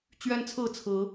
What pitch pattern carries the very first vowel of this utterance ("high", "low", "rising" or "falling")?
high